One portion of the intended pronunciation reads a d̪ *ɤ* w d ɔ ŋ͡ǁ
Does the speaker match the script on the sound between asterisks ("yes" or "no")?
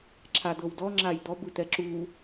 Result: yes